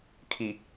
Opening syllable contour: low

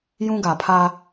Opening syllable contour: high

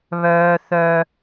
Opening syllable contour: high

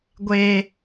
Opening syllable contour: high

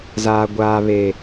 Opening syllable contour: low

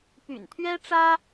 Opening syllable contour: low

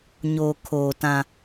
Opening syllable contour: low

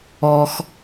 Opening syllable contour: high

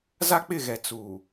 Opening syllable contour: high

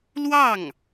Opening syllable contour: falling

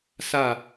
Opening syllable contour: falling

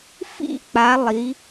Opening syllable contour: falling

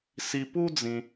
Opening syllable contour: low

